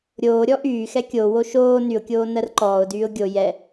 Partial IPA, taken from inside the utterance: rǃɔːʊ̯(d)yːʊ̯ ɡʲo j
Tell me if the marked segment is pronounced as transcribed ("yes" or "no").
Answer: yes